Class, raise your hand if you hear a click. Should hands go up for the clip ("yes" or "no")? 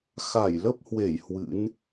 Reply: no